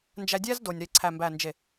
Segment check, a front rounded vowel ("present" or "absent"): absent